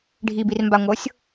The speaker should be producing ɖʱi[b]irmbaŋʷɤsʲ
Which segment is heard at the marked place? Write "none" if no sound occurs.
b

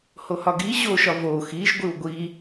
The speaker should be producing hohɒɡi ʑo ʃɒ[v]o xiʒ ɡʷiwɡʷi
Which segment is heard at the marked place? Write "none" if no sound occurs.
v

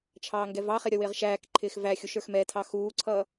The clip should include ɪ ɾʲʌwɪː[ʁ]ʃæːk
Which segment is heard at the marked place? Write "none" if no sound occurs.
ʁ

